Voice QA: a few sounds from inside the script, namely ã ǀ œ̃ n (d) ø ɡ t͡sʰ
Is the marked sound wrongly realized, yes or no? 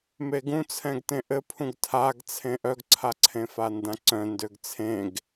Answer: no